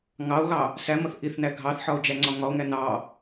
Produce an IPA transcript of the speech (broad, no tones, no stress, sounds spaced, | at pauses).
ŋ ɑ o̯ ɣ ɑ | s æ m ʌ θ ʔ i θ n æ ɡʱ ɑ θ ħ ɒ o̯ d͡ʒ æ ŋ͡ǀ ɒ ŋ ɒ o̯ ŋ æ n ɑ